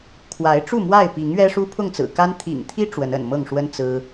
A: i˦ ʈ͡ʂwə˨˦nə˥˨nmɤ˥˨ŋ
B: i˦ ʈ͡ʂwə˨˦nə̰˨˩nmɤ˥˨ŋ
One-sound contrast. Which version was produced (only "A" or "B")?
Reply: B